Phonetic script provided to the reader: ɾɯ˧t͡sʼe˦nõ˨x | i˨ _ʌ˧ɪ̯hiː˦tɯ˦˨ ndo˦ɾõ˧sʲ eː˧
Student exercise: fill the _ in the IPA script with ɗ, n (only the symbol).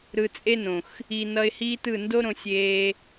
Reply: n